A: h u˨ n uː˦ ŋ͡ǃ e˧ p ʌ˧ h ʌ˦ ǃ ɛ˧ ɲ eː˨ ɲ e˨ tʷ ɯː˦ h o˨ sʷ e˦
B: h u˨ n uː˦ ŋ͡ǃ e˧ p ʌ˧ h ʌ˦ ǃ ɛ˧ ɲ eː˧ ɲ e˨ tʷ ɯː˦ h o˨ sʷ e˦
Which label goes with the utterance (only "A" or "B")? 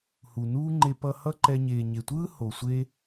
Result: A